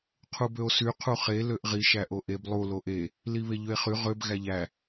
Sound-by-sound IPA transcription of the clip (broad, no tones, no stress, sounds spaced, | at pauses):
qʰ u b ø o̯ s y qʰ u χ e l ø ʔ ʁ i ʃ æ ʔ o ʔ e b lˠ u l o ʔ e | l i β e ʎ ø e̯ χ y ʁ ø b ɣ æ ʎ æ